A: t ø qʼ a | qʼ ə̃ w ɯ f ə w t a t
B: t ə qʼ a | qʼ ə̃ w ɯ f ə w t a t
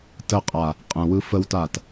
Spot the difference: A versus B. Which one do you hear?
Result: B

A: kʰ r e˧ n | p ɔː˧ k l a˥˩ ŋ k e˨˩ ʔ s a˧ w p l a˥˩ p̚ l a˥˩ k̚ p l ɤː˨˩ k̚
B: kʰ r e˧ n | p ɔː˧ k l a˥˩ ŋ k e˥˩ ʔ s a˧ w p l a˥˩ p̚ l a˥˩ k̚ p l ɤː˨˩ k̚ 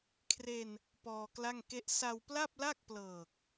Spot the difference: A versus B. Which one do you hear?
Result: B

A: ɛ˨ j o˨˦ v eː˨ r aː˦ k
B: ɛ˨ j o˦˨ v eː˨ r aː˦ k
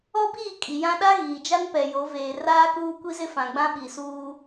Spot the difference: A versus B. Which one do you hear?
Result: A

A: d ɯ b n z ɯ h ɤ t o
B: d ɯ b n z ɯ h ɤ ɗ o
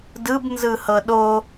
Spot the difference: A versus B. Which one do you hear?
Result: B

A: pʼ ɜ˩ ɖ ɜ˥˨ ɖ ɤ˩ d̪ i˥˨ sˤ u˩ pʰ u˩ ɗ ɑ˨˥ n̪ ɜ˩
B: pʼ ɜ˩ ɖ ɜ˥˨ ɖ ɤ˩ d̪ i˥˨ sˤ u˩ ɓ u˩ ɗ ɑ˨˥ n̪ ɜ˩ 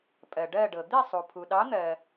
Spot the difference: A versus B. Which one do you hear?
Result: A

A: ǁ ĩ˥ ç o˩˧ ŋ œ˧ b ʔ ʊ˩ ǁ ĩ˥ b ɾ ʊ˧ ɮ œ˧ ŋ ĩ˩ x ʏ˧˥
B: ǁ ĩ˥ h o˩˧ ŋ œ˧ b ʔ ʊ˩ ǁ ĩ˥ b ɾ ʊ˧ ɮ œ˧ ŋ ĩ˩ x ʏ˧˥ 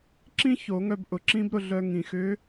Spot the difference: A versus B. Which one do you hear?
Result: A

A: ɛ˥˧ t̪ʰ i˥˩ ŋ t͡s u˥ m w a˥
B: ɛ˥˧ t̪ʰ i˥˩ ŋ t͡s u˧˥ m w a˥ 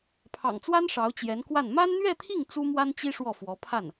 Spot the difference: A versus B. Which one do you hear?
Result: A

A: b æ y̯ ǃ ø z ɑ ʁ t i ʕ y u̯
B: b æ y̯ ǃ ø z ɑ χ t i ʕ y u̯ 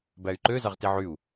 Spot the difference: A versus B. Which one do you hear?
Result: A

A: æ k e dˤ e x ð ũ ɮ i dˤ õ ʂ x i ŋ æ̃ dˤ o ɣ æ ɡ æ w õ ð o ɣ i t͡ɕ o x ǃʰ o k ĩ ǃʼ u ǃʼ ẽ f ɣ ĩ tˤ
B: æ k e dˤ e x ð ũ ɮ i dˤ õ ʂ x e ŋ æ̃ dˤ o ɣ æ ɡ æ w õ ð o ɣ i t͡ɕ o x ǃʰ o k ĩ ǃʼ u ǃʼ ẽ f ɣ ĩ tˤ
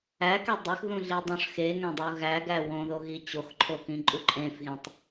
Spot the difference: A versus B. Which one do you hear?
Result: B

